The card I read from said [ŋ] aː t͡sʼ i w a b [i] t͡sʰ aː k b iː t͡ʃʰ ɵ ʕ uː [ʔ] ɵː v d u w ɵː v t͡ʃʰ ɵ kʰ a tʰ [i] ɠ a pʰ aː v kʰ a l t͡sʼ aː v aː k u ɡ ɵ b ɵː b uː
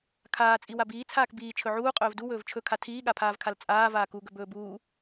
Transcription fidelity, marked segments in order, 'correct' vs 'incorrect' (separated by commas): incorrect, incorrect, incorrect, incorrect